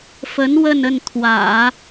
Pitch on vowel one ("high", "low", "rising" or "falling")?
rising